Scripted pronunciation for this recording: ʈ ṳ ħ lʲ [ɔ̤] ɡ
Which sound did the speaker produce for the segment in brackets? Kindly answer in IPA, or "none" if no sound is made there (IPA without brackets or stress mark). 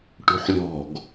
ɔ̤